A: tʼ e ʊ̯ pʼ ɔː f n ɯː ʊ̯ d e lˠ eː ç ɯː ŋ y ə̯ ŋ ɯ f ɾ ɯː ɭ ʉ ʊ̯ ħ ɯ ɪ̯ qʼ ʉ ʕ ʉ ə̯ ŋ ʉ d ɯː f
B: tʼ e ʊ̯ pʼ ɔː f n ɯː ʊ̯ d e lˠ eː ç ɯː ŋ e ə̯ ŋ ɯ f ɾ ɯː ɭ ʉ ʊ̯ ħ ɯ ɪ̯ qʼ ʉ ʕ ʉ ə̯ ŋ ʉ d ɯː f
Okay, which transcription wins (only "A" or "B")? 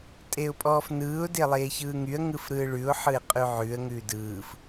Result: A